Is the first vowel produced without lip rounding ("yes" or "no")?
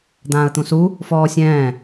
yes